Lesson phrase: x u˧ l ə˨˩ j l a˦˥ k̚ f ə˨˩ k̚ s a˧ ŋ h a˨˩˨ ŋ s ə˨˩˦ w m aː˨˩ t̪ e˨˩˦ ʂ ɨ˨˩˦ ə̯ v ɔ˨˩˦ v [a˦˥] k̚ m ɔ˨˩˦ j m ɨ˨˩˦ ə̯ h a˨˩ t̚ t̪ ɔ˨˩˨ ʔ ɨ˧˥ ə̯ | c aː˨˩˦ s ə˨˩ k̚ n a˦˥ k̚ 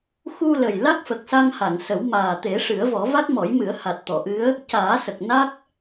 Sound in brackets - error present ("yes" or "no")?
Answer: no